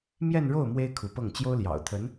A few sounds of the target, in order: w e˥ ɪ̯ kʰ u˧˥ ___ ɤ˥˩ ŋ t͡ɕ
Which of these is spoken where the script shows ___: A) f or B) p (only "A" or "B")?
B